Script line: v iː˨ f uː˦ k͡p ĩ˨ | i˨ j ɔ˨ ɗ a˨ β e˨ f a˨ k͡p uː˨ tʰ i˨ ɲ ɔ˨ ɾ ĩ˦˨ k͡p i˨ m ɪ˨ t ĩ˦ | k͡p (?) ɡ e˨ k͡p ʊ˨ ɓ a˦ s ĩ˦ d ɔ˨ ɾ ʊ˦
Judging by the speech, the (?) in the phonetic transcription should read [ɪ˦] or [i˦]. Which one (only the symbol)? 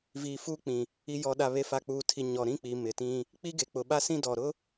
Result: i˦